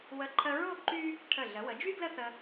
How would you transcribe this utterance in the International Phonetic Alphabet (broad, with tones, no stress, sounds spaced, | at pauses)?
w ə˧˩ ǃʰ ə˧ ɹ o˥˧ ǃ y˥ | ʈʰ ə˧˩ ɮ ə˩˧ w ə˩˧ d͡ʒ y˥ ɡ l ə˥ θ ə˧